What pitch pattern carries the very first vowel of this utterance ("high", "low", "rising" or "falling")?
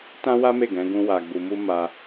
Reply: high